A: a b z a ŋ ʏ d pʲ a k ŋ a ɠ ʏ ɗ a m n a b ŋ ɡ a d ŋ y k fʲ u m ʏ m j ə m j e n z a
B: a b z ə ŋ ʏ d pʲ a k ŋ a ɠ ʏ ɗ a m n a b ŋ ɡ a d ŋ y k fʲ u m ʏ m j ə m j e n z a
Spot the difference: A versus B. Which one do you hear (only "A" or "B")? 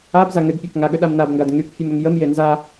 A